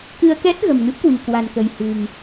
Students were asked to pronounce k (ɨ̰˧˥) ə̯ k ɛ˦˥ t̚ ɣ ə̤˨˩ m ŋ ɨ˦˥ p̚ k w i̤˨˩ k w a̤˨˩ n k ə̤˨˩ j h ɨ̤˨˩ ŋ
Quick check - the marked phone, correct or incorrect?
incorrect